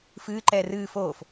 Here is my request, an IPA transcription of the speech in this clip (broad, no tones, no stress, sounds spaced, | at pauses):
f ɨː ǃ ɛː r ɨː f oː f